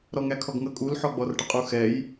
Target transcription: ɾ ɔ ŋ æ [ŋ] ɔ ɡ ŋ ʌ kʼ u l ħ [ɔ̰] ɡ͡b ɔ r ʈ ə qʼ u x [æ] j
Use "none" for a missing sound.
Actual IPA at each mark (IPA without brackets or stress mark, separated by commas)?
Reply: kʰ, ɔ, ɛ